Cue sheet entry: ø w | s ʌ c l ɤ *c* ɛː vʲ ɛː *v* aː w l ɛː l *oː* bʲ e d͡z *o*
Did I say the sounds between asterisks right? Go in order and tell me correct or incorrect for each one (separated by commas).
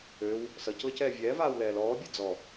correct, correct, incorrect, incorrect